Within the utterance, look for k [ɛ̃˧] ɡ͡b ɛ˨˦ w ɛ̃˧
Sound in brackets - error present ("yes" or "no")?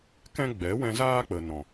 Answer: yes